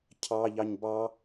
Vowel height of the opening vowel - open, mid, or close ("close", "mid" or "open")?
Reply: open